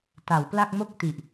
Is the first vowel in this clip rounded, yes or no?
no